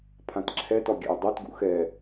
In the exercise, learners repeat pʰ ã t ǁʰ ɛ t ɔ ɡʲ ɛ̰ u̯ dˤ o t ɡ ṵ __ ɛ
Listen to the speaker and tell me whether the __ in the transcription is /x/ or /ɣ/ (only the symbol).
x